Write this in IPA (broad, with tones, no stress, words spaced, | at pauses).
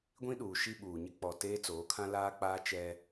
ɡʷĩ˦ɗuː˨ ʃi˦ɓuː˨ ɲɪ˦k͡pɔ˨ teː˦t͡soː˨˦kʰã˦ laː˦k͡paː˦ t͡ʃɛ˦